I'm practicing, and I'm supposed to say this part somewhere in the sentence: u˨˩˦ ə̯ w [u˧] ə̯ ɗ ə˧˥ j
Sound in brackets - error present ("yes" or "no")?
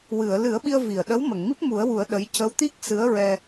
yes